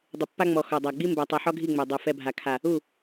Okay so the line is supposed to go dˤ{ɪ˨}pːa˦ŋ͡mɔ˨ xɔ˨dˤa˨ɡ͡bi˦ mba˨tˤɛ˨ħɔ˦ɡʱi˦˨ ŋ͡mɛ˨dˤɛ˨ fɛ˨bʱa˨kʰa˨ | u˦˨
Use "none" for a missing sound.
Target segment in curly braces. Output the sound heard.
ɪ˨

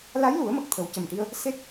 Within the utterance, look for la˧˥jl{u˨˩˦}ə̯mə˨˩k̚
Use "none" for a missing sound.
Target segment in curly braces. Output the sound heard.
u˨˩˦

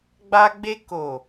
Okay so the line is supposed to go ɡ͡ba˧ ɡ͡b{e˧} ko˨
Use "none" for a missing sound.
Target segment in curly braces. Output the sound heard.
e˧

